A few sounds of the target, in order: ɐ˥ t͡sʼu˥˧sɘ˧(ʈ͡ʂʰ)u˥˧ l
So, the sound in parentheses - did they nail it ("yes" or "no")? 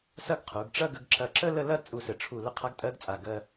yes